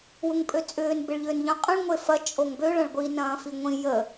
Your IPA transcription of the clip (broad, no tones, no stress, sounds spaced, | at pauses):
w ʊ ŋ pʼ ø t͡sʼ ʏː n b ɪ ɭ ʎ ʏː n ʎ œ̃ qʼ ə̃ ɭ ŋʷ e f ɐ t͡ʃʼ o ŋ b ø ɭ ɐ̃ ɭ ɡʷ i n ɐ̃ː f i ŋʷ ĩ j ə